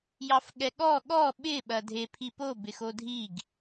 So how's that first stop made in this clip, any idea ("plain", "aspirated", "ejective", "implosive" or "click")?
implosive